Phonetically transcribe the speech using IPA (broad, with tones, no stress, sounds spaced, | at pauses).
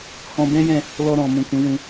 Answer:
h ɔ̃˧ b ɛ̃˦ j ɛ̃˦˨ | l ɔ˧ ɾ ɔ̃˨ m ũ˨ k ũ˨˦ w ũ˧